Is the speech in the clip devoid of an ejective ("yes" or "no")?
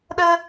yes